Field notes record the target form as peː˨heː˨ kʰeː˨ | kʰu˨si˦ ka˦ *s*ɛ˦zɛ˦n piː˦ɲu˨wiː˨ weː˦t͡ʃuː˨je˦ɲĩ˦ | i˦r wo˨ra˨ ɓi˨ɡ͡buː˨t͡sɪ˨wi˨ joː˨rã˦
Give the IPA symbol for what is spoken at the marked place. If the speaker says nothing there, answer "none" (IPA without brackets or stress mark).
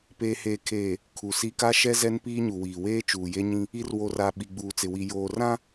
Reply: ʃ